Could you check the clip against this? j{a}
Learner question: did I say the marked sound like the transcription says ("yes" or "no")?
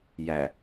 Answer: no